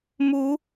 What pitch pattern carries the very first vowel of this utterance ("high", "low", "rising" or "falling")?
rising